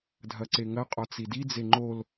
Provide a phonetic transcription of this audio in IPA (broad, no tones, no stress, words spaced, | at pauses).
dʱɐǀeŋɐ qʼɒt͡sidi d͡zeŋ͡ǃol